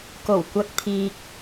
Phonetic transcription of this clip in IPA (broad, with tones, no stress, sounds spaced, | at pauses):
k o˨˩ w kʷ ɐ˧ k̚ t̪ʰ iː˨ k̚